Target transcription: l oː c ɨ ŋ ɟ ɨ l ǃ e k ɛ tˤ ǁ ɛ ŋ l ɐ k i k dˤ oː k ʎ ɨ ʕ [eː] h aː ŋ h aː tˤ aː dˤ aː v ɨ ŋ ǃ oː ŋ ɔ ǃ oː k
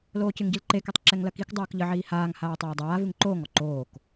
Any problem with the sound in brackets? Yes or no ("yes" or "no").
yes